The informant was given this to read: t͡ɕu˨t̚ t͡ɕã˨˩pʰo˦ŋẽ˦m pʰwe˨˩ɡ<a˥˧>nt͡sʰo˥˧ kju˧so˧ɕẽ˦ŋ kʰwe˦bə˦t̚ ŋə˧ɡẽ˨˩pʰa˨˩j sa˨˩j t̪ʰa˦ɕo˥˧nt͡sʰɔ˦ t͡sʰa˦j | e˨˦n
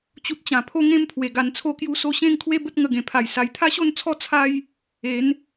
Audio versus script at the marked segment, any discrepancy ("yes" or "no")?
yes